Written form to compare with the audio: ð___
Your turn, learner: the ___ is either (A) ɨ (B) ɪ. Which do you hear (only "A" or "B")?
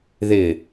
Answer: B